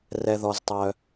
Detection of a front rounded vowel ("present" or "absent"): present